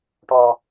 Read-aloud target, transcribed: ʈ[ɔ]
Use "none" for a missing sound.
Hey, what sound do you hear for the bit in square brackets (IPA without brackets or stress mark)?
ɔ